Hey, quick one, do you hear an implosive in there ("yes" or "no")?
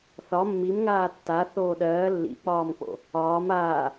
yes